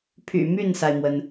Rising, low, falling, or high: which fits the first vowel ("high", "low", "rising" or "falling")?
low